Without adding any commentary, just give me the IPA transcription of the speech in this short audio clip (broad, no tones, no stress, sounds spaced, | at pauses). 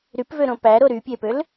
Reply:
ɾ y p v ø ɾ õ p æ ɾ o ɾ y pʲ e p ø l